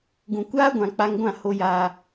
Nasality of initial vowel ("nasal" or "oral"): nasal